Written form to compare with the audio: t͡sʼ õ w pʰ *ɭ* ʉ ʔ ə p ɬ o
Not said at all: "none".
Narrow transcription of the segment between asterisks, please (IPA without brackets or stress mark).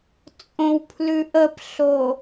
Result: l